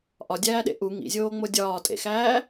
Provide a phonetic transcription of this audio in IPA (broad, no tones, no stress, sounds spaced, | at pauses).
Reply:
ʔ ɒ dʲ æː ɗ ḛ ʔ u ŋ ḭ zʲ oː ŋ͡m o dʲ ɒː tʼ ḛ x æː